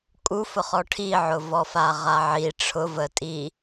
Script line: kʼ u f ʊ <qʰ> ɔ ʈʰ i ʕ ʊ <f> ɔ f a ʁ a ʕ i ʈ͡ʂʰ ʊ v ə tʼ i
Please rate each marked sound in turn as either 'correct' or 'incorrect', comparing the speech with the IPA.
incorrect, incorrect

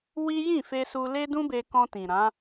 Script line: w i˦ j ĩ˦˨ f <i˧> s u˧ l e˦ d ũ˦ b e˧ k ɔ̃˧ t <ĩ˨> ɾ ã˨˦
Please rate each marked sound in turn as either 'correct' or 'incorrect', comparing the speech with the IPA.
incorrect, correct

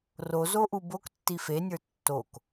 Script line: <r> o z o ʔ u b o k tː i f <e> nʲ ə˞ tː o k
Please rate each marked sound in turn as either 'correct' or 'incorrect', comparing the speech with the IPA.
correct, correct

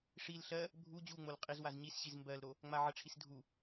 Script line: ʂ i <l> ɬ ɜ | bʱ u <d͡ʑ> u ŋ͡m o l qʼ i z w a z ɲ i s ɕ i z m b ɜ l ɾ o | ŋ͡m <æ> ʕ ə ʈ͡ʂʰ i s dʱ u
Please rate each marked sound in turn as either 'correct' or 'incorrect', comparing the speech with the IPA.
correct, correct, incorrect

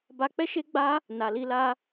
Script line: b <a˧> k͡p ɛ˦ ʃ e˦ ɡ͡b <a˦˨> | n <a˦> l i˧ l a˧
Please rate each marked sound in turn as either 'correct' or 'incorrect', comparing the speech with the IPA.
correct, incorrect, incorrect

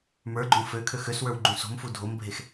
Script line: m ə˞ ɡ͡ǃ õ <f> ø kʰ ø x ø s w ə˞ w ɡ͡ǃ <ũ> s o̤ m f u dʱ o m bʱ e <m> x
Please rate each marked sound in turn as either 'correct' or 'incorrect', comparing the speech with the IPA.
correct, correct, incorrect

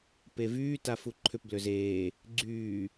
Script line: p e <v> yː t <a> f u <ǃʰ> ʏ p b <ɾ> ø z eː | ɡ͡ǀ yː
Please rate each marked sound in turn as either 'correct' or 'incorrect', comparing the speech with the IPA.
correct, correct, correct, incorrect

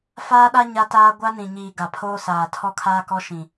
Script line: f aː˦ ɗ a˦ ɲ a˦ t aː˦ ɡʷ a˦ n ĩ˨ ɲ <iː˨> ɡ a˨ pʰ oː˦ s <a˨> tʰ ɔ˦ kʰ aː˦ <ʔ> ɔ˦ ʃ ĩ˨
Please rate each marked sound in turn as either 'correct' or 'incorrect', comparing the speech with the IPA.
correct, incorrect, incorrect

